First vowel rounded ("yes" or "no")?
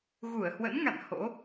yes